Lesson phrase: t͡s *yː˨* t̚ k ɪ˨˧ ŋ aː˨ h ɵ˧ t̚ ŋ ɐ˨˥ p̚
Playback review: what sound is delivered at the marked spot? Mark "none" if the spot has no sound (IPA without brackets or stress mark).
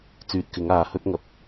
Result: yː˨